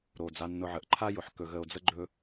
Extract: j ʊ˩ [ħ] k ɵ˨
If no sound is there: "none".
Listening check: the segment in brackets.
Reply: ħ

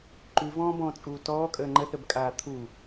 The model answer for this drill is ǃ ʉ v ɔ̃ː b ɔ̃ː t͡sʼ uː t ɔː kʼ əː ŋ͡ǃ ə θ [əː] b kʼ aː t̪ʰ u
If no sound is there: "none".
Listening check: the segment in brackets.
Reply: ə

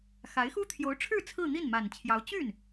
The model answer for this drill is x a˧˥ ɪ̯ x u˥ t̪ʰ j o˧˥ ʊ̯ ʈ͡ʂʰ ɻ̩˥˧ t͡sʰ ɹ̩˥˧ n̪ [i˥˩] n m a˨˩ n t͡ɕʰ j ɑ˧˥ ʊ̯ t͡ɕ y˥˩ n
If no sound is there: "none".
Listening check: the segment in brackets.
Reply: i˥˩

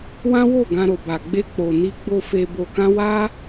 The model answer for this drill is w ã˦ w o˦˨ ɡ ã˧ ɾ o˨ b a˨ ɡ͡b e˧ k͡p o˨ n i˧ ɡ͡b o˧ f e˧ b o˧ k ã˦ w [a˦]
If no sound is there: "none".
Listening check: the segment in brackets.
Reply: a˦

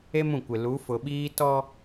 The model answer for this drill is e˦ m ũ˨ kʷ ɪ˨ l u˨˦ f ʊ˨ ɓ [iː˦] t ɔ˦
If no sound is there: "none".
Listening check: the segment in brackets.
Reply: iː˦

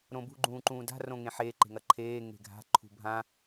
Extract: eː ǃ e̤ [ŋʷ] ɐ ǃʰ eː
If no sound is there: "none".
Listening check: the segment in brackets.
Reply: ŋ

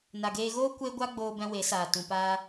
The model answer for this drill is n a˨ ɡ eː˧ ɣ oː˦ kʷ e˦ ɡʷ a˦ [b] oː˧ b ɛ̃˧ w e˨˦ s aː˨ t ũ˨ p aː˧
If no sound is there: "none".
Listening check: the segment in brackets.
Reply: ɡ͡b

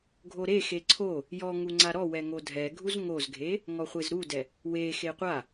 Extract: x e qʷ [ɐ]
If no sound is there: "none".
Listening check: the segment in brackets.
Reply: a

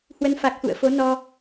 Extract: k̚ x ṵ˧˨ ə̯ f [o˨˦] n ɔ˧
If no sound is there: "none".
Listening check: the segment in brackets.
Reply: o˨˦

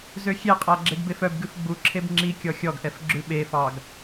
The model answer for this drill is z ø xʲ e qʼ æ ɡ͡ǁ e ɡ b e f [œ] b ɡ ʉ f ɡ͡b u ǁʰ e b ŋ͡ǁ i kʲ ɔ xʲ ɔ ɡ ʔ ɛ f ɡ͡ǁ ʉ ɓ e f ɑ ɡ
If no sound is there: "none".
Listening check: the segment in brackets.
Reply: œ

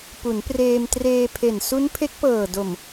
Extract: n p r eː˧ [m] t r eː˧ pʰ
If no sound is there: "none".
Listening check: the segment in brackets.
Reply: m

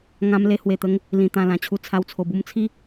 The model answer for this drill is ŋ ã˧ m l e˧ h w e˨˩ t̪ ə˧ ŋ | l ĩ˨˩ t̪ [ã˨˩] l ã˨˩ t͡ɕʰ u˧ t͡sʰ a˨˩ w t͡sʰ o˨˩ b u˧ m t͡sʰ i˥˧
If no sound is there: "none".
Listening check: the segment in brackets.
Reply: ã˨˩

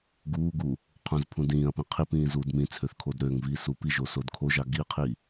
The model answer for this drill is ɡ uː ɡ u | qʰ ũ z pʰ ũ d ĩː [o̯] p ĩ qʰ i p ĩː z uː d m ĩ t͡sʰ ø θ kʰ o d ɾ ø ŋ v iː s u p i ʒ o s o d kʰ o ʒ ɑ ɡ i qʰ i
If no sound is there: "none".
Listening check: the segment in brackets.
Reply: ɐ̯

